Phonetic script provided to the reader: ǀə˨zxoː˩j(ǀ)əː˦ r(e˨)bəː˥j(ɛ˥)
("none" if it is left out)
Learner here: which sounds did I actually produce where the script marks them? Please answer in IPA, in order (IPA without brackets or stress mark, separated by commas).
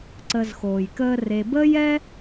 k, e˨, ɛ˥